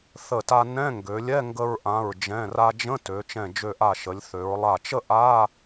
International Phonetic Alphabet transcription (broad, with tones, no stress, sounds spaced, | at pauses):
θ ə˧˩ t a˧ n ɛ̃˧˥˧ ŋ ɡ ø˩˧ lʲ ɛ˧˥˧ ŋ ɡ ə˧ ɹ ʔ ã˩˧˩ ɹ d͡ʒ ɛ̃˩˧˩ r a˧ d͡ʒ ə̃˧˥˧ t ø˩˧ t͡ʃ ɛ̃˧˩ d͡ʒ ø˧˩ ʔ a˧˩ ʃ ə˩˧ lʲ θ ø˩˧ ɹ lˠ a˧˩ t͡ʃ ə˥˧ ʔ a˧˥˧